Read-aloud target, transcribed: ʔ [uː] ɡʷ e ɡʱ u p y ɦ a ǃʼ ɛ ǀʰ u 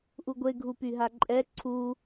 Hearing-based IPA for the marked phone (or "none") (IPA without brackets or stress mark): u